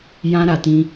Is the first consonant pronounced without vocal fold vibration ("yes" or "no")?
no